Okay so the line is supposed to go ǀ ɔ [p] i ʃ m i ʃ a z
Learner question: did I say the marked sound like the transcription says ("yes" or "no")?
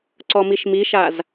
no